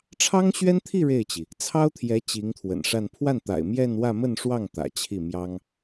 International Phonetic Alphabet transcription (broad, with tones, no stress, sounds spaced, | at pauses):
ʈ͡ʂʰ ɑ˥ ŋ ɕ ɥ ɛ˥ n t̪ʰ i˥˧ ɻ e˥˩ ɪ̯ t͡ɕ i˩ | t͡sʰ ɑ˥ ʊ̯ t̪ʰ j ɛ˧˥ t͡ɕ i˧˥ ŋ t̪ʰ w ə̰˨˩ n ʂ a˥˧ n pʰ w a˥˩ n t̪ a̰˨˩ ɪ̯ m j ɛ˥˧ n w ä˥˧ m ə˥˧ n ʂ w ɑ˥˩ ŋ t̪ ä̰˨˩ t͡ɕʰ i˥˩ m j ɑ˥ ŋ